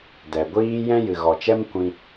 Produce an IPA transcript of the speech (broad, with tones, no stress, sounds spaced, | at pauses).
d ɛ˨ ɡʷ iː˦ j ɛ̃˦ j ɨ˨ ɣ ɔ˨ t͡ʃ ɛ˦ m kʷ ĩ˧